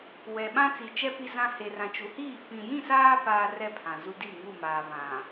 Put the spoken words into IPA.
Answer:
w ɛ˨ ɓ ã˦ t͡s i˨ t͡ʃ ɛ˦ p i˦ z ã˦ h e˨ r ã˨ t͡ʃ u˨ h iː˦˨ f ĩ˨ j ĩ˦˨ s aː˦ p aː˦ r ɛ˦ pʰ ã˨ z u˦ d i˦˨ ŋ u˦˨ m aː˨ β ã˨

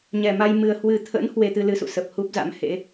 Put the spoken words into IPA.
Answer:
ɲ ɛ˨˩ m a˧ j m ɨ˨˩ ə̯ h w ɨ˨˩ t̪ʰ ə̰˧˥ n h w e˧ t̪ ɨ˧ l ɨ˨˦ s ṵ˧˨ s ə˨˩ p̚ h u˦˥ p̚ z a̰˧˥ m h ḛ˧˥

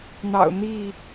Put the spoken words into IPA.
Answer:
n̪ ɑ̰˨˩ ʊ̯ n̪ i˥˨

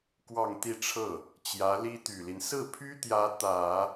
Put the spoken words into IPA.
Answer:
k w ɑ˥˧ ŋ t̪ i˥˧ ʈ͡ʂʰ ɤ˥˩ | t͡ɕ j ä˧˥ l i˥ t̪ y˨˩ l i˦ n s ɹ̩˥˩ pʰ y˥ t̪ j ä˧˥ t̪ ä˨˩˦

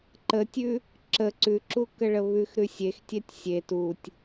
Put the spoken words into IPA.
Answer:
ǃ ə tʲ ʉ | ǁ ə ǀ ʉ ǁ u k ə ɭ ə β ʉ x ɾ ʉ sʲ e x tʲ ɛ tʲ sʲ e t u tʲ

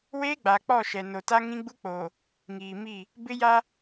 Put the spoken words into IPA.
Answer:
w eː˦ ɡ͡b a˨ k͡p ɔ˦˨ ʃ ɛ˨ n o˨ t a˦ ŋ ĩ˦ ɡ͡b u˦ k͡p oː˨ | ŋ iː˨ m i˦˨ | b ɪ˦ j a˦

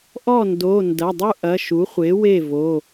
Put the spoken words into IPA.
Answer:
ʔ ɔ˥˩ n d o˩˧˩ n d ɐ˩˧˩ dˤ u˥ ʔ ɐ˩˧˩ ʃ u˩˥ χʷ e˩˥ w e˥˩ v o˩˧˩

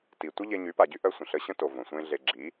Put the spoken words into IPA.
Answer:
t i˨ tʷ ə˦ ʎ e˧ ɲ y˨˦ p a˨ ɟ y˦ ʔ œ˧ sʷ ə̃˨ ɬ ə˧ ɕ ə̃˦ t o˨ v õ˨ sʷ ẽ˦ ɮ e˧ ɡ͡ǁ i˨˦

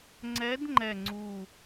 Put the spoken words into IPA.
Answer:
ŋ͡ǀ ɛ˨˦ d ŋ͡ǃ ɛ˨˩ ŋ͡ǀ u˨˩

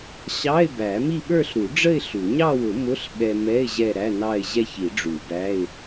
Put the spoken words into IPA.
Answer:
ɕ ɑ˧˥˧ ɪ̯ b æ˨˩˦ m i˥˧ ɓ ə˞˥˧ ɬ ɾ u˨˩˦ ɖ͡ʐ ə˥˧ ɪ̯ ɬ u˨˩˦ ɲ ɑ˥˧ w ʊ˨˩˦ m ʊ˧˥˧ ɬ ɓ ɛ˧ m ɛ˧˥˧ ɪ̯ ʑ ɛ˥˧ ɾ æ˧˥˧ n ɑ˥˧ ɪ̯ ʑ ɛ˥˧ ç i˨˩˦ ɖ͡ʐ u˨˩˦ b æ˧˥˧ ɪ̯

